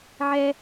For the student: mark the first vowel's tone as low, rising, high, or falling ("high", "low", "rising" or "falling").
high